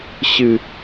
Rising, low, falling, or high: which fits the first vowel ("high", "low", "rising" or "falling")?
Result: low